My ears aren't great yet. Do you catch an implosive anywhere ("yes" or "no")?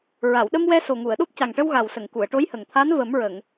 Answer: yes